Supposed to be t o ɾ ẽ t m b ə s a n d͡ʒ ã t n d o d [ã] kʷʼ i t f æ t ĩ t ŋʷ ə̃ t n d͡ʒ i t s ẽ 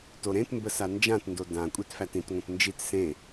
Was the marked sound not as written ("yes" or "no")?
no